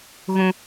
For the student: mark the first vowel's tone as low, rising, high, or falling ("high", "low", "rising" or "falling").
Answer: high